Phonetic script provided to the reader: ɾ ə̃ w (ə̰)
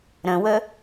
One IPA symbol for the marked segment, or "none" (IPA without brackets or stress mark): ə